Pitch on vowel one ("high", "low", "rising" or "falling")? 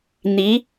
rising